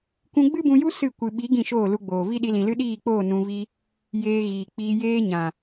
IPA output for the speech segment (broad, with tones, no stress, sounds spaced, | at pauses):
kʷ ũ˧ ɡ͡b ɨ˦ b ũ˧ j u˦ s ɨ˦˨ kʷ ɨ˨ ɓ i˨˦ ɡ ĩ˦˨ ʃ oː˦˨ l u˧ ɡ͡b oː˨ v i˦ ɗ i˧ l ĩ˨ l ɨ˦ ɗ iː˦˨ k͡p oː˦˨ n ũ˧ v i˦ | j eː˧ ɣ iː˨ k͡p iː˧ j eː˦ ɲ ã˨